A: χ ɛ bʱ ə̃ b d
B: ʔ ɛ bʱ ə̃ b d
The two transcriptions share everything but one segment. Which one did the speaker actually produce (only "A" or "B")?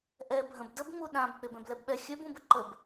B